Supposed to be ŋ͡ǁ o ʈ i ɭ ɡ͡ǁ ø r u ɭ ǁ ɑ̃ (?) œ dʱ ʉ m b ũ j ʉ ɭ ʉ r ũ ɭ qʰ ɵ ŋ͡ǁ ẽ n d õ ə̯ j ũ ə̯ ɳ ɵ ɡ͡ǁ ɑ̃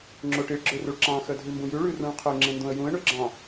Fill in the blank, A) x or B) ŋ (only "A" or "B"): A